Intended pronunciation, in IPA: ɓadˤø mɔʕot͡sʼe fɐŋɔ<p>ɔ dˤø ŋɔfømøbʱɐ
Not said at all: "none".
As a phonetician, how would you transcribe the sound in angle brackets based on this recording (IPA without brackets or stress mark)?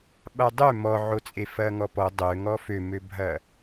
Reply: p